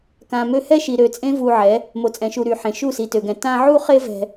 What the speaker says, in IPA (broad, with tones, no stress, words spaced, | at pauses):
kã˨mø˧hɛ˦ʃi˨ ɾø˨t͡sʼẽ˦ vu˧ʕɛ˨˦ | mo˨t͡sʼɛ̃˨ʃu˨ ɾy˨ħẽ˨ ʃu˦˨si˨tø˨ɡɛ̃˨ tã˦ ʕu˦χe˦ vɛ̤˧